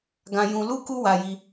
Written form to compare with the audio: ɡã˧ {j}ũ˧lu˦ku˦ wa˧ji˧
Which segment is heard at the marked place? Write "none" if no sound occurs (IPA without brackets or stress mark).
j